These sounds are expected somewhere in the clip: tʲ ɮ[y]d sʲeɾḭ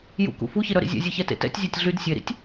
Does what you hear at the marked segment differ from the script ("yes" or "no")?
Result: no